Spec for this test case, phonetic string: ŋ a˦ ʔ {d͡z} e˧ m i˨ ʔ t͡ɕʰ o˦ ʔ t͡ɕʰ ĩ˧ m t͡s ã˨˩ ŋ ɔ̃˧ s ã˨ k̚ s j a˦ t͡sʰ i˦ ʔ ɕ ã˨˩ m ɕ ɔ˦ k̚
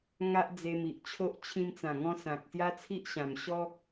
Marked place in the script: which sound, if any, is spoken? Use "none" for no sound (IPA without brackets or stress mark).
d͡z